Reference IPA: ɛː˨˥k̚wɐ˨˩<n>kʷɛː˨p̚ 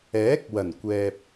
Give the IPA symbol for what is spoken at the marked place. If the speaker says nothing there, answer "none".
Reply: n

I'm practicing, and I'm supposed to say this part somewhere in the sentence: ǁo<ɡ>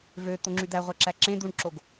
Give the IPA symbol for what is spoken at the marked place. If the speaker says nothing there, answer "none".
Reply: ɡ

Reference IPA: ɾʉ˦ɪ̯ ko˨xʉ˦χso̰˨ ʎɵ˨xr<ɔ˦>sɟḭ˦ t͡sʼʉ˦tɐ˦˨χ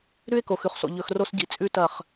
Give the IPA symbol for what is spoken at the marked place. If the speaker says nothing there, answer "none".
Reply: o˦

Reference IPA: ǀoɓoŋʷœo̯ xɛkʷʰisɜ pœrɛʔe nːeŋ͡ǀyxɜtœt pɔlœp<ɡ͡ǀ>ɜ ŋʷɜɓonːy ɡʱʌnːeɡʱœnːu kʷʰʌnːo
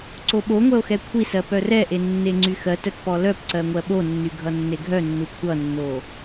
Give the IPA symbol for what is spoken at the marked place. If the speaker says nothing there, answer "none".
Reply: ǀ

